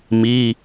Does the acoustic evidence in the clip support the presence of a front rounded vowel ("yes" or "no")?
no